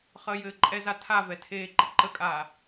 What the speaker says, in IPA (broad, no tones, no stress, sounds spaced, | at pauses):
χ əː j ɘː ǃʼ ɛ z a tʰ a v ɛ tʰ eː ǃ ɘ ǃ ə kʼ aː